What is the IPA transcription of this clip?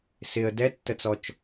s ɪ ə̯ d ɛ tː ə t͡s ɔ t͡ʃ

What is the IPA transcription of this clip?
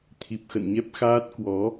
t̪ʰ i˨˩ p̚ x ə̰˧˨ n ɲ ɛ˦˥ p̚ x aː˦˥ t̚ k w ɔ˨˦

